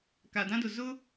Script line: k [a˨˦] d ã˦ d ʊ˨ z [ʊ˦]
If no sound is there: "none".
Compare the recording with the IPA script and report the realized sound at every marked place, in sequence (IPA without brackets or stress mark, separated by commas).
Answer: a˨, ʊ˦